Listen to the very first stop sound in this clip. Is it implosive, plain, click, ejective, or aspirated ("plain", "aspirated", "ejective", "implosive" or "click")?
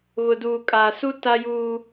plain